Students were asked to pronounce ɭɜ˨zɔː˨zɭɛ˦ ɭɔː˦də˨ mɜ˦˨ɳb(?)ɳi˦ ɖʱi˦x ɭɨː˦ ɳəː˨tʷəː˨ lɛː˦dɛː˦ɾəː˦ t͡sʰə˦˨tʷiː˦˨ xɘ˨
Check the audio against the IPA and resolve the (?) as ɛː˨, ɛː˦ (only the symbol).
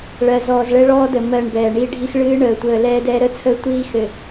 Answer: ɛː˨